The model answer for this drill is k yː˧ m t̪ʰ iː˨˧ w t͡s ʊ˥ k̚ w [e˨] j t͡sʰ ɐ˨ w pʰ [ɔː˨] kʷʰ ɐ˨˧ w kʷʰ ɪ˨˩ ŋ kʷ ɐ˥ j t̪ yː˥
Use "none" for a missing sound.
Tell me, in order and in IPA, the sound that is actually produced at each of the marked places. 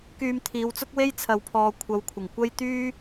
e˥, ɔː˨

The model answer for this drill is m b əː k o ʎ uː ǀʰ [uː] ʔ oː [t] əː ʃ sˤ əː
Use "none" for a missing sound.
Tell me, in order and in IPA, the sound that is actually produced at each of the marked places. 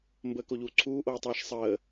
uː, tˤ

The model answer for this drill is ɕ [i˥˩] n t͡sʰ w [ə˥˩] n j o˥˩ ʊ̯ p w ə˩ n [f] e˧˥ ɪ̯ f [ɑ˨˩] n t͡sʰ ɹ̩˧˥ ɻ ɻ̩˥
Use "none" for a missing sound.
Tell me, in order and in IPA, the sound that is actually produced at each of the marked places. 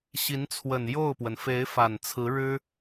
i˧˥, ə˨˩, f, a˨˩

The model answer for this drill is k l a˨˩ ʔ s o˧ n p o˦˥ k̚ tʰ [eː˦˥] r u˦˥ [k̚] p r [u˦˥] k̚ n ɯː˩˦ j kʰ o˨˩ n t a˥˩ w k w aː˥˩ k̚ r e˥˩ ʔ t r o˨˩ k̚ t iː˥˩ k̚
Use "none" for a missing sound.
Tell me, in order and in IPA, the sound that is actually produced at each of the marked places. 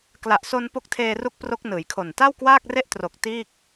eː˧, k̚, o˦˥

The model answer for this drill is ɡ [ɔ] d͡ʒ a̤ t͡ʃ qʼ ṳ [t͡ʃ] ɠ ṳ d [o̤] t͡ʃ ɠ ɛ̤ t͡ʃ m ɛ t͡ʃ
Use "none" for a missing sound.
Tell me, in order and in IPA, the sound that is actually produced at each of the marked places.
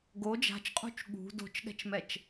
o, t͡ʃ, o̤

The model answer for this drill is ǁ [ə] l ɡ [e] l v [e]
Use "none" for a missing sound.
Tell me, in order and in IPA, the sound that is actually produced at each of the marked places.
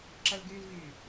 ə, y, y

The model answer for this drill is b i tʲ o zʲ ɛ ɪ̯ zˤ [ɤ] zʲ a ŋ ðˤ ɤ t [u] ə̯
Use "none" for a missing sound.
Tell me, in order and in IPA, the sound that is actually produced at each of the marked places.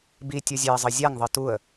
ɤ, u

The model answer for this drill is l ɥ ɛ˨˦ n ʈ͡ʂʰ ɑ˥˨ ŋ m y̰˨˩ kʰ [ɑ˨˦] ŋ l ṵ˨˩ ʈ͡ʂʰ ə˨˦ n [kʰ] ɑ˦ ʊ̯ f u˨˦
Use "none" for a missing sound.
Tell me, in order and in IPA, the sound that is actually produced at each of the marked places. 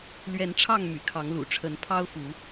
ɑ˨˦, pʰ

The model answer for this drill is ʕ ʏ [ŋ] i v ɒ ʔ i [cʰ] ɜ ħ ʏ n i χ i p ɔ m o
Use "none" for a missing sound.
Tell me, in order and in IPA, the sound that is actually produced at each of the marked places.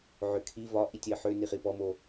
kʰ, tʲ

